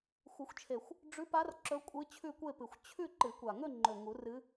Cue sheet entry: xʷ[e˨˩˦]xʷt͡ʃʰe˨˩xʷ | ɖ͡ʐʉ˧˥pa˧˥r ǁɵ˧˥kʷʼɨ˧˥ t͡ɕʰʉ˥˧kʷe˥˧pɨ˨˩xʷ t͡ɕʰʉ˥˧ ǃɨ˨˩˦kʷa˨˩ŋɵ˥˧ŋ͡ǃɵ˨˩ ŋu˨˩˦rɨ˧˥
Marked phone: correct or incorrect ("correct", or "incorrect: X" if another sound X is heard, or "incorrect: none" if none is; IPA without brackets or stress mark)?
incorrect: ɨ˨˩˦